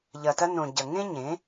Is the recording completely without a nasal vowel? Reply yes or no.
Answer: no